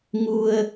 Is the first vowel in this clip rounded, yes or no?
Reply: yes